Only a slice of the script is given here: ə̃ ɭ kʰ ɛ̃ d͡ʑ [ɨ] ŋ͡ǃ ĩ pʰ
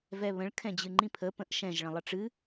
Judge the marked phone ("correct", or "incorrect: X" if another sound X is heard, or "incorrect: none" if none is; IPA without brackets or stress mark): correct